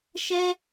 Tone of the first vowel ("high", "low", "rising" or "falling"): high